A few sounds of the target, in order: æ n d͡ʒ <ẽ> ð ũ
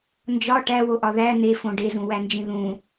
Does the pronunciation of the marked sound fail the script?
yes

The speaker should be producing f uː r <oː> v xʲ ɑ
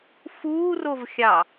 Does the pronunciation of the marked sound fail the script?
yes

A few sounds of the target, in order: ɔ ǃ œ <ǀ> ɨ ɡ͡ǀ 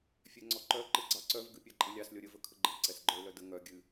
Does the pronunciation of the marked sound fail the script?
yes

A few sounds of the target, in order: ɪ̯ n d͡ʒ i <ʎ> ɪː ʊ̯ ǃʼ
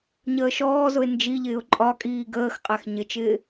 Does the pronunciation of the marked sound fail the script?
no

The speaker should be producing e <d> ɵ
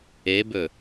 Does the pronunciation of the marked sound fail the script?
yes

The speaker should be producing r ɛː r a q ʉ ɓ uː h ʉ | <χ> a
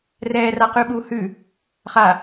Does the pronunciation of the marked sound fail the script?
no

